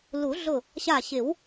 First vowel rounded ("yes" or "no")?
yes